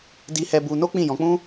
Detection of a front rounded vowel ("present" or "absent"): absent